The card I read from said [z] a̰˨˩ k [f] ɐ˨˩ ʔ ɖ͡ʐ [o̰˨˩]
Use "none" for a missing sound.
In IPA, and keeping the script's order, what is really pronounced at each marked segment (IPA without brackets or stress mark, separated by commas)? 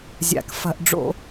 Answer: zʲ, f, o̰˧˩˧